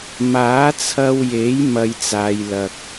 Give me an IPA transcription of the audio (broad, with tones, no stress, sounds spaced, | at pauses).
m aː˨˥ t͡sʰ ɐ˧ w j e˨˥ j m ɐ˧ j t͡s aː˨˧ j l ɐ˨ k̚